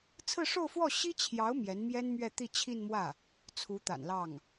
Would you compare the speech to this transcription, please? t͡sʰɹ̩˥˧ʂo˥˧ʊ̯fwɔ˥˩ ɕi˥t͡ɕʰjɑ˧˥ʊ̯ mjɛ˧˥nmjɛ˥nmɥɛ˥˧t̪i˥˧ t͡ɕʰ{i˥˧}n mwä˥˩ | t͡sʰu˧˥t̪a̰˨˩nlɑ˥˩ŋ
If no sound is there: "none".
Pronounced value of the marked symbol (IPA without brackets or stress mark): i˥˧